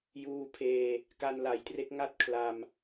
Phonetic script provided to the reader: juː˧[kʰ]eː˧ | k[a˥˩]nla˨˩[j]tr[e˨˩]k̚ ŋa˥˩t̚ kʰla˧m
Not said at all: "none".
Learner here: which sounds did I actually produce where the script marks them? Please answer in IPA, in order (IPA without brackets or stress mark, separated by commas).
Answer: pʰ, a˧, j, e˦˥